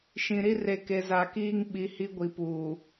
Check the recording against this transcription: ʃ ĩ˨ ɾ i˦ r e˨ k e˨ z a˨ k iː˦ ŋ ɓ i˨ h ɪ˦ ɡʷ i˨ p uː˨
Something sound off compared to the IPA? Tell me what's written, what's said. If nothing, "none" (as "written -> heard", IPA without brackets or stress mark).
ɪ˦ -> i˦